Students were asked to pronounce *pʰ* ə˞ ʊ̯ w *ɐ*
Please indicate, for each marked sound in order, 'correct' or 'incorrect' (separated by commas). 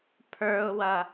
correct, correct